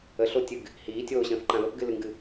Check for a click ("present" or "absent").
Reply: present